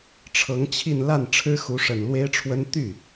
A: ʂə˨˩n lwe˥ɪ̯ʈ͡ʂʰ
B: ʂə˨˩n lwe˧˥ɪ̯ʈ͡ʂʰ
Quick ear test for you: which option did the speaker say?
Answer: A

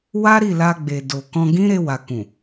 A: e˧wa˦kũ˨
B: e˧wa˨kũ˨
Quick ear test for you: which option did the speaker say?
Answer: B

